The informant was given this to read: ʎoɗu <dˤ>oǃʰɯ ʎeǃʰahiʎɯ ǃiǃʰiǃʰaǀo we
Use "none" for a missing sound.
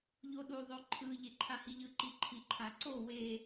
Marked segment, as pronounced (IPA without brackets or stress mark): ðˤ